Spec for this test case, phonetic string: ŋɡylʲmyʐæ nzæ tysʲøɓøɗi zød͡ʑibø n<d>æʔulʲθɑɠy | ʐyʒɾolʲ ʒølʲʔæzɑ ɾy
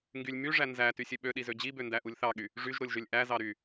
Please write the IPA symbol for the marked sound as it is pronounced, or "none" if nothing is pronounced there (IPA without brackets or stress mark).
d